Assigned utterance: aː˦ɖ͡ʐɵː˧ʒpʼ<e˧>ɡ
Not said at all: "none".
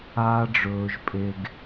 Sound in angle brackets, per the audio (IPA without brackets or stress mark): e˧